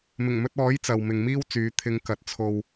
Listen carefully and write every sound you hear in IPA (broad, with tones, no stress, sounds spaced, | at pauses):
m ɪ˨˩ ŋ m ɵ˧ t̚ ɔː˨˥ j t͡s ɐ˨ w m ɪ˨ ŋ m iː˥ w t͡s yː˨˧ t̪ʰ ɪ˨˧ ŋ k ɐ˨ t̚ t͡sʰ o˧ w